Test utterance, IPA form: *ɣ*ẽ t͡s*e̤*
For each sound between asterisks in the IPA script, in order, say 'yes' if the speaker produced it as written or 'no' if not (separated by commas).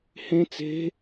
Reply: no, yes